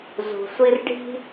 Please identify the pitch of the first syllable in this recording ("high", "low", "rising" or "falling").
low